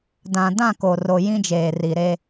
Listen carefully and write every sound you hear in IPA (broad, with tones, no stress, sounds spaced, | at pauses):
d ã˨ d ã˦˨ k o˨ r o˨ j ĩ˦ d͡ʒ eː˨ r i˨ ɾ e˦